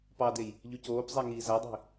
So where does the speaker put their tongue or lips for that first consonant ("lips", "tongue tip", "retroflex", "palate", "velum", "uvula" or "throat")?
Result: lips